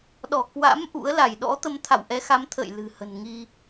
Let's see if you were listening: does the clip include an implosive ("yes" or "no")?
yes